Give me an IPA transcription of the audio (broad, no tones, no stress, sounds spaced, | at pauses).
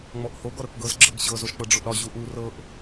ŋ͡m ɔ ʔ h o ɡ ɔ ɾ ɤ k ɡ ɤ z ɡ͡ǁ ɤ ɡ ɕ ɤ z o ʃ k͡p ɤ ɖ͡ʐ o ʔ ɾ ɒ ʑ u ʔ u r ɤ ʔ